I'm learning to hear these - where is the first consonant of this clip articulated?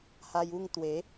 throat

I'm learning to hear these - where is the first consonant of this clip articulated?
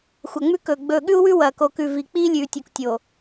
velum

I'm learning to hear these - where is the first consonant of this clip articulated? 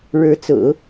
retroflex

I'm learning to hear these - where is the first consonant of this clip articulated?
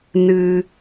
tongue tip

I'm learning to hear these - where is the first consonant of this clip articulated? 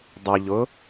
tongue tip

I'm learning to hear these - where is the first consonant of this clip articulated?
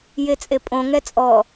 palate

